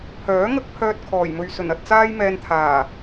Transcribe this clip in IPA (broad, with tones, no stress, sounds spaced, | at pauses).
pʰ œː˨˥ ŋ ɐ˥ k̚ pʰ œː˥ t̚ kʰ ɔː˨˩ j m ɵ˨ ɥ s ɵ˨˩ n ɐ˨ t̚ t͡s aː˥ j m ɛː˧ n t̪ʰ aː˨˩